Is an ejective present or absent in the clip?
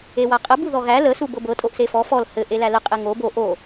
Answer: present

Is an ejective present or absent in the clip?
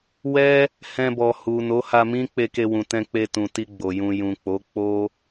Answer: absent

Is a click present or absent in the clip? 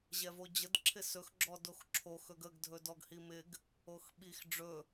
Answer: present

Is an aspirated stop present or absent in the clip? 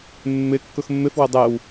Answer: absent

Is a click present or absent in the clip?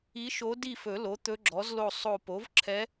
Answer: present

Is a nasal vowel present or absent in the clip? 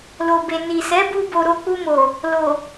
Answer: absent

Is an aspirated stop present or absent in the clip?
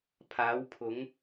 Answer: present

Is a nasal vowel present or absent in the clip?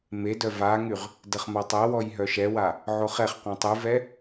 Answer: present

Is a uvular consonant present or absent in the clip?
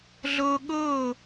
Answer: absent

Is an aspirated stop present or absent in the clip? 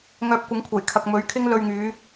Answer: present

